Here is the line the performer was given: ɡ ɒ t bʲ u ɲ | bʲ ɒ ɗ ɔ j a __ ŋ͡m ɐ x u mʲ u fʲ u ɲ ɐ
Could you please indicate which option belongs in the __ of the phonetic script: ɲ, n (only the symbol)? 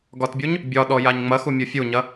ɲ